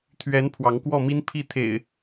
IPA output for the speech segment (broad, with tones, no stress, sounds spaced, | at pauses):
t̪ʰ ɥ ɛ˨˦ n pʰ w ɑ˨˦ ŋ k w ɔ˥˨ m i˦ n pʰ i˥˨ t̪ʰ ḛ˨˩ ɪ̯